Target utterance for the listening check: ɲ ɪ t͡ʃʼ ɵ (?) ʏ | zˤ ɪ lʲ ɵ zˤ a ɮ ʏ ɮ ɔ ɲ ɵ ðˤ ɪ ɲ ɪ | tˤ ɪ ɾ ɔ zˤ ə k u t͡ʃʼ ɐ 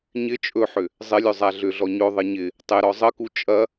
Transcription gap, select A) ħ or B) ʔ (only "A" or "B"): A